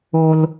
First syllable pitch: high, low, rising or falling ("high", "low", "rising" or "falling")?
high